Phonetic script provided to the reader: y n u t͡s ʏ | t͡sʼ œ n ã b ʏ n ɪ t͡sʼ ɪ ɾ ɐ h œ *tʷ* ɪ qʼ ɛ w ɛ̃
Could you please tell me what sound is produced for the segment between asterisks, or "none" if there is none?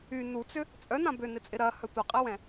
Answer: tʷ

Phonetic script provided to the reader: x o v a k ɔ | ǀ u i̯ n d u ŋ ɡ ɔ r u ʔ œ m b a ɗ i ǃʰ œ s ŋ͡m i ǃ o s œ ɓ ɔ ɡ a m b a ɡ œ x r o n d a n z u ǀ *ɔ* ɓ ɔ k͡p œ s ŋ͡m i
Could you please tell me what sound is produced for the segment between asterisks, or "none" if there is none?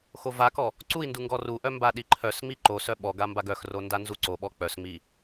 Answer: o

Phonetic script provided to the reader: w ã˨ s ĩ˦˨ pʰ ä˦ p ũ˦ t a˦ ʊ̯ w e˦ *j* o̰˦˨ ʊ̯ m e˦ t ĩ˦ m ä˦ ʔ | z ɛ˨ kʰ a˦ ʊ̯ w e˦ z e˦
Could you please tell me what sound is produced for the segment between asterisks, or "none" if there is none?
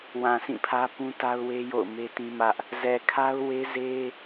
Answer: j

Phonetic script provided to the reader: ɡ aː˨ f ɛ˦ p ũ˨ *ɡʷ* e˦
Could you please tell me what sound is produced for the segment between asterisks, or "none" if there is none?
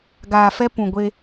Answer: ɡʷ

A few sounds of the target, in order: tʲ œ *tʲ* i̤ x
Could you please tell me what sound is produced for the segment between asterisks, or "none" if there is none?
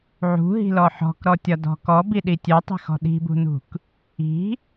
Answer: tˤ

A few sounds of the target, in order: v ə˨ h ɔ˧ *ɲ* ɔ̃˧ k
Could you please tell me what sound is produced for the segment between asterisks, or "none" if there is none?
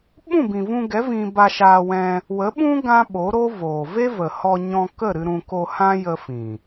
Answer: ɲ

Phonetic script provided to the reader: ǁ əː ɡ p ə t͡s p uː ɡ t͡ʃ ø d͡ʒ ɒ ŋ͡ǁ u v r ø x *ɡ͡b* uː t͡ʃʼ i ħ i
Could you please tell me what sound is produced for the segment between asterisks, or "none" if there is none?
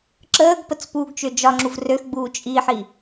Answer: ɡ͡b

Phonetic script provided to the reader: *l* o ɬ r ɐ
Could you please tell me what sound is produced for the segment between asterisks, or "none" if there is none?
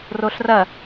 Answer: r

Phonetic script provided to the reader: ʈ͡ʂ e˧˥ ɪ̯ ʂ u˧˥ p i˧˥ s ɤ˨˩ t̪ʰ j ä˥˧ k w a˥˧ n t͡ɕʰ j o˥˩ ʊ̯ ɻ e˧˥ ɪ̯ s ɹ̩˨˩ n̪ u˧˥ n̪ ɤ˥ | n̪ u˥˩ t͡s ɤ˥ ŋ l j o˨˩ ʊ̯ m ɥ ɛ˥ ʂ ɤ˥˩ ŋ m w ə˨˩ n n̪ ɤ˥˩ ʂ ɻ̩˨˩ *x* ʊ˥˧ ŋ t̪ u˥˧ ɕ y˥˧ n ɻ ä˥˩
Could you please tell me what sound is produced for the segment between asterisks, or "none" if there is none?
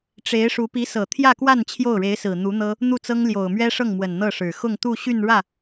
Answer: x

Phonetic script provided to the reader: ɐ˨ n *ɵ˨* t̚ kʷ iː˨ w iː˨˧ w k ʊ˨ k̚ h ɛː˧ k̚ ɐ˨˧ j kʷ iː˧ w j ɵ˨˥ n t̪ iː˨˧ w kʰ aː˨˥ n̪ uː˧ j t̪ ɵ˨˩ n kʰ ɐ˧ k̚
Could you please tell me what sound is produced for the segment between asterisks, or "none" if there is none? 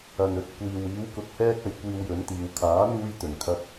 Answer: ɵ˨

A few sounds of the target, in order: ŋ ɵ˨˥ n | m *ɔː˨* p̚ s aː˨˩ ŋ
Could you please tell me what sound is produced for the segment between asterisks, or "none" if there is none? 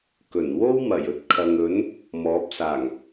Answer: ɔː˨˥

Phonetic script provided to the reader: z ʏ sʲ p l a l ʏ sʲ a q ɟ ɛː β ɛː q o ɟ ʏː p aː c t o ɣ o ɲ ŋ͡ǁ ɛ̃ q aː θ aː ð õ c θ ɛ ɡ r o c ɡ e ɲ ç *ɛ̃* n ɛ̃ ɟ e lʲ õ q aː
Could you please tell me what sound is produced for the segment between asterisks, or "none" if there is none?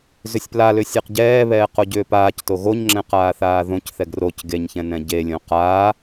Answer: ɛ̃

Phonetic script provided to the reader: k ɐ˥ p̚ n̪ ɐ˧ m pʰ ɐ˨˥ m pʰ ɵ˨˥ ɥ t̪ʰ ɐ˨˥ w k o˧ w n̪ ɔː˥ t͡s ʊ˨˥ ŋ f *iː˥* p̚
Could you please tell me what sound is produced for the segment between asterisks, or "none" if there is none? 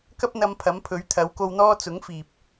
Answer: iː˨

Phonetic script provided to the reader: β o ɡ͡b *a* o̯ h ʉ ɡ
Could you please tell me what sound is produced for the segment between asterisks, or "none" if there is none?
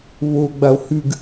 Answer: a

